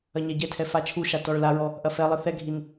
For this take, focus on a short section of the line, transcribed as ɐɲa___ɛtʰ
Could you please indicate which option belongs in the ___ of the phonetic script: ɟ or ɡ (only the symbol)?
ɟ